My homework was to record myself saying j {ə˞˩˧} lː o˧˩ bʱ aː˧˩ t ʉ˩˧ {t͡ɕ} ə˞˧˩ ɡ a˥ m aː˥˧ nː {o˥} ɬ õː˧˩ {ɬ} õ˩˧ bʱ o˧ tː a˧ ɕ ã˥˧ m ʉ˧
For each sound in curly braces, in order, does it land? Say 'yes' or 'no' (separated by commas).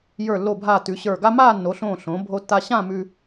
no, no, no, yes